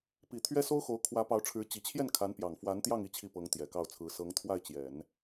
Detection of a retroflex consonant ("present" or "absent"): present